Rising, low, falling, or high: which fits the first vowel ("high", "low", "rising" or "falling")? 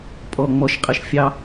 low